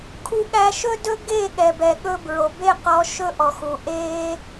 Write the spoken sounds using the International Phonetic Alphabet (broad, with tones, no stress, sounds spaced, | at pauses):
kʰ u˧ ɠ æ˧ ʃ ɵ˦ d ɵ˦ ɡ e˦˨ ɠ ɛ˨ b ɛ˨ ɠ ɵ˧ b ɹ o˨ b e˦˨ q ɔ˦ ʃ ɵ˦ ʔ ɔ˨ x u˨ ʔ e˦